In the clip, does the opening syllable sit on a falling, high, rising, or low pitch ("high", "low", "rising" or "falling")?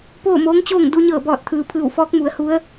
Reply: falling